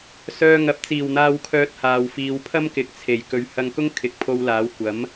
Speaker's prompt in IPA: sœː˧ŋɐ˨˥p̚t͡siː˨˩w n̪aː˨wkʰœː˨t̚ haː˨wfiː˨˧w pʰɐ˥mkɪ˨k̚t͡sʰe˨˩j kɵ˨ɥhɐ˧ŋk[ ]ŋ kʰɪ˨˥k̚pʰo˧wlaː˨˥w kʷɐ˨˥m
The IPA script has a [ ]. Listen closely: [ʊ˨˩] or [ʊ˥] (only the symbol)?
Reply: ʊ˥